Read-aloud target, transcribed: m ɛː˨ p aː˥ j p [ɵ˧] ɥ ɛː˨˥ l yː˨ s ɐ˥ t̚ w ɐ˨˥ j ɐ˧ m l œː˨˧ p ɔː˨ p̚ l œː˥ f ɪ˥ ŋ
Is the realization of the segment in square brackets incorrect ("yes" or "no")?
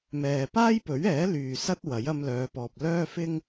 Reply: yes